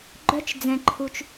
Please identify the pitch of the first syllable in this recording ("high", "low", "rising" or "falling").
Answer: high